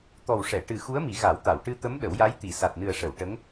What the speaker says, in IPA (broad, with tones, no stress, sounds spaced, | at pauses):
t̪ ɔ˨˩ w ʂ ɛ˨˩˨ ʈ ɨ˨˩ x u˧˥ ə̯ m i˨˩˦ ɣ a˨˩˦ w t̪ a˨˩˨ w ʈ ɨ˧ t̪ ə˧˥ m ɗ ə˨˩˦ w j a˧˥ j t̪ i˨˩˨ s a˨˩ t̚ n ɨ˨˩ ə̯ ʂ ə˨˩˨ w ʈ ə˧˥ ŋ